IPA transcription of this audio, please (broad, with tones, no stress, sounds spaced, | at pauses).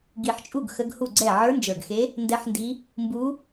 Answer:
ɡ i˨˩ ħ t͡ʃʼ u˥˩ ɡ x ə˧˥ ɡ h u˥˩ ɡ͡ǀ ɛ˥˩ ʕ ə˞˧˥ n d͡ʒ ə˞˨˩ ɡ x e˧˥ | n d ɛ˧˥ ħ n d i˧˥ | m b u˧˥